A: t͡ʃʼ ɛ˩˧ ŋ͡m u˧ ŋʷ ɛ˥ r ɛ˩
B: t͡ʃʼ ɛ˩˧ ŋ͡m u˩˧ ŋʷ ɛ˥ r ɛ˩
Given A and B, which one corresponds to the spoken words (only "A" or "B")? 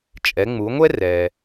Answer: B